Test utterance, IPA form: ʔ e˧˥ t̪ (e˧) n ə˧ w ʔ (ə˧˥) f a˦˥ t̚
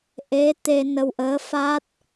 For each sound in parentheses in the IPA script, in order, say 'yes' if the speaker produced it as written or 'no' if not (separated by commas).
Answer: yes, no